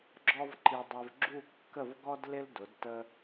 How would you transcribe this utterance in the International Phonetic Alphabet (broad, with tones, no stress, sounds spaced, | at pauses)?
ɡ͡ǁ ɔ˥ v ǃ i˧ dˤ ɪ˧ v ɡ͡ǁ u˥˧ kː ə˥˧ v ɡ ɔ˥ d l ɪ˥ l d ʊ˩˧ d t ə˧